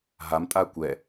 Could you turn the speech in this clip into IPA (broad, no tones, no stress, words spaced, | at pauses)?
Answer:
ɦam tʼakʷɛ